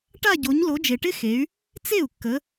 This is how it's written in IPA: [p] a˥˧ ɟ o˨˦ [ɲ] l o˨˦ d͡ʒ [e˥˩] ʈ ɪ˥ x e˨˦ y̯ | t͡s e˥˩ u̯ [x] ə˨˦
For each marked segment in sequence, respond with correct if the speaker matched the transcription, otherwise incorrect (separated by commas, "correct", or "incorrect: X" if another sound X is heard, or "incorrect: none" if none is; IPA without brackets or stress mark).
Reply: incorrect: ʈ, correct, incorrect: e˨, incorrect: kː